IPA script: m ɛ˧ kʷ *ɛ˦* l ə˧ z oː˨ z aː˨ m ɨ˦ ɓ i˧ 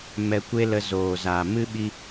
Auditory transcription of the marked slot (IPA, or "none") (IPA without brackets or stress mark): e˦